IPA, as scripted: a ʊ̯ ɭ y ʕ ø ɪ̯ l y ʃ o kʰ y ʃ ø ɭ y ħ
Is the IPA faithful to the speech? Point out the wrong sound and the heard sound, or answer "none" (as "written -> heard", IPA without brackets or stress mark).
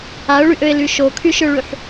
ʕ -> ʔ